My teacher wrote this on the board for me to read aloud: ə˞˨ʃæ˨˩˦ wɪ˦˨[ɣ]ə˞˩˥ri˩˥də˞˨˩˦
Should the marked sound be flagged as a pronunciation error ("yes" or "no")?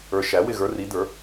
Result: no